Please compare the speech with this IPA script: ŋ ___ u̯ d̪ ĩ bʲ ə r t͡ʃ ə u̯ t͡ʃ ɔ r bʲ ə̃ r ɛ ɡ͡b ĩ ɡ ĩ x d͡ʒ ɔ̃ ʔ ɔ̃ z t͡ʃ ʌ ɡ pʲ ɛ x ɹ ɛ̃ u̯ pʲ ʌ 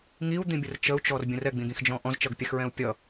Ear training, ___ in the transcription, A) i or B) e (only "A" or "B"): A